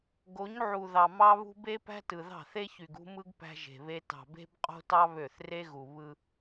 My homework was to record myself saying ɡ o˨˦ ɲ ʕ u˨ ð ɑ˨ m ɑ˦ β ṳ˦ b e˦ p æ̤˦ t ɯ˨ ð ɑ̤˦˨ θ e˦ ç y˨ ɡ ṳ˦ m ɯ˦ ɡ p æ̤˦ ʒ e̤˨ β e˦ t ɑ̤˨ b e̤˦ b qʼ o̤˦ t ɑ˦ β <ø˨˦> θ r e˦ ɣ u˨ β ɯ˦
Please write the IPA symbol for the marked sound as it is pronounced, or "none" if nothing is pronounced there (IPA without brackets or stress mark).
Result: ø˦˨